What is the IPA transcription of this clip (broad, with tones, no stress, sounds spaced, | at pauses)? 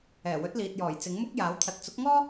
ɛː˨˩ w ɵ˨˥ t̚ l iː˨ t̚ j ɔː˨˩ j t͡s ɪ˨˥ ŋ m ʊ˥ k̚ j aː˨˥ w t̪ʰ ɐ˨ t̚ t͡s ʊ˨˥ k̚ ŋ ɔː˥